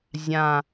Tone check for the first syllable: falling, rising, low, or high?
low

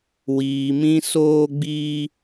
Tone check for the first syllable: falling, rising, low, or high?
low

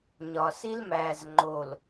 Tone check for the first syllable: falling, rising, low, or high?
low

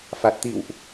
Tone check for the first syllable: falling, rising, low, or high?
low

